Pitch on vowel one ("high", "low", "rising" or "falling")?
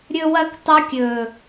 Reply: high